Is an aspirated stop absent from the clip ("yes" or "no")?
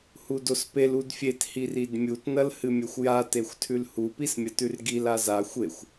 no